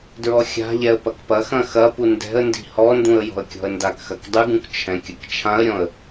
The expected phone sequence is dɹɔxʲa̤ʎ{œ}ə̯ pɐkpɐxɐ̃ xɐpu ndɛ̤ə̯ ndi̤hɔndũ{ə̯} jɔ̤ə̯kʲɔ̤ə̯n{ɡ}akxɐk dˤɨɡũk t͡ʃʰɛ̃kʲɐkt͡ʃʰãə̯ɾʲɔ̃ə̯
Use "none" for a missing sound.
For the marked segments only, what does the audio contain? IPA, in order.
ɛ, ə̯, d

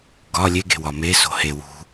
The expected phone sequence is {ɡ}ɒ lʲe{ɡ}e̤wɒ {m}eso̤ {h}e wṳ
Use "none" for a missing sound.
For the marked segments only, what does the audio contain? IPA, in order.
ɡ, ɡ, m, h

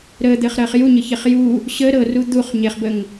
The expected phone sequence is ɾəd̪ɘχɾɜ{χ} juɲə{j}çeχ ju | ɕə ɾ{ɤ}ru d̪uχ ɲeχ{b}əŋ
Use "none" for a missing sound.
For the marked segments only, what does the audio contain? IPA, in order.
χ, none, ɤ, b

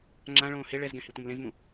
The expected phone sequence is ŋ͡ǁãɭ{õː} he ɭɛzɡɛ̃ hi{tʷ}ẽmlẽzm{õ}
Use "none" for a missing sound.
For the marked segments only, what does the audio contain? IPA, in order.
õː, tʷ, ũ

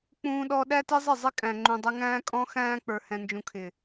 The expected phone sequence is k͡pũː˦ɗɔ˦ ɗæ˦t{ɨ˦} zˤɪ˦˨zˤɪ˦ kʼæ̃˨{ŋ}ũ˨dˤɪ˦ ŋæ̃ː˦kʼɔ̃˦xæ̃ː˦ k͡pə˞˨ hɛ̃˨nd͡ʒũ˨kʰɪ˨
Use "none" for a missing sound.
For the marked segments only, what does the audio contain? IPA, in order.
ɪ˦, ŋ͡ǃ

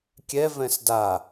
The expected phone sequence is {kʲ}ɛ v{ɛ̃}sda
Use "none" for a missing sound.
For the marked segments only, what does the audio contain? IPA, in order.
kʲ, ɛ̃

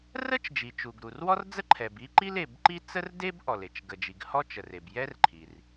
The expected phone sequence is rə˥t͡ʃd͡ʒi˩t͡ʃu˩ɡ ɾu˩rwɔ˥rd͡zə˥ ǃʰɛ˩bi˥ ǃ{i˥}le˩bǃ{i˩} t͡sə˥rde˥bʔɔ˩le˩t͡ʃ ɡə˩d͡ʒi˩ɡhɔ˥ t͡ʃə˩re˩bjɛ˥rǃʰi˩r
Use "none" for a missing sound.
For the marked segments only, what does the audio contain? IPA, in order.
i˥, i˥

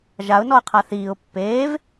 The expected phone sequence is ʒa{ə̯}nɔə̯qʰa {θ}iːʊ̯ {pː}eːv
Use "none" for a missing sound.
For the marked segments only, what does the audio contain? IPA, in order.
ʊ̯, θ, pː

